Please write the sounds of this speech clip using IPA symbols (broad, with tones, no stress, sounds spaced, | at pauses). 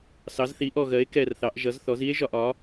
s ɑ˩˧ z θ i˩˧ ʔ ɔ˨˩ ɣ ɜ˩˧ e̯ k ɛ˨˩ r θ ɑ˩˧ ʔ ʒ ʌ˩˧ z θ ɔ˩˧ z i˦ e̯ ʒ ɒ˨˩ ʔ ɒ˩˧